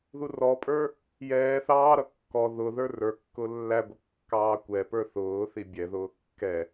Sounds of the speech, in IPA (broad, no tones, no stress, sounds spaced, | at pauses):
ð u r ɔ pʼ ə˞ | j ɛː θ ɑː ɾ ʌ kː ɔ ð ʊ ð ə˞ r ə˞ kː ʊ lː æ ɡʷ ɪ kː ɑː kʷ ɛ p ə˞ θ ʊː θ i bʲ ɛ ð ʊː kː ɛ